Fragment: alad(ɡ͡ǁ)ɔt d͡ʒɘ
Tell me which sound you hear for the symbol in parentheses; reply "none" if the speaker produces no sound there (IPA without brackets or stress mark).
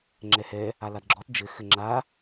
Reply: ɡ͡ǁ